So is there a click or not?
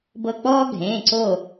yes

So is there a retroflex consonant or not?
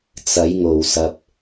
no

